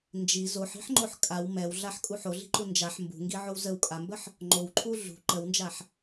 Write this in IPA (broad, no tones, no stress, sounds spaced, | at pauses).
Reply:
n d͡ʒ i z o ħ i̤ ħ ŋ͡ǃ o ħ kʼ a w m ɛ w ɮ a ħ kʼ u ħ o ɮ i̤ ǃ u n d͡ʒ a ħ m b ṳ ŋ ɡ i ʕ o w z ə w kʼ a m b ə ħ | ŋ͡ǃ o w ǃʰ u ɮ ṳ ǃ ə w n d͡ʒ a ħ